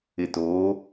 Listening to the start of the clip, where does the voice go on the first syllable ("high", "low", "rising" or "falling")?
low